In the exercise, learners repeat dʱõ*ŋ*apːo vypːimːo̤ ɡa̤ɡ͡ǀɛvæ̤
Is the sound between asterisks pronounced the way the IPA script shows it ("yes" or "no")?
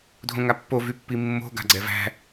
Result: yes